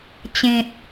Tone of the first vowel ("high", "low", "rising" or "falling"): low